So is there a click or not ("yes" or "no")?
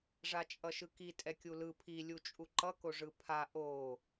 yes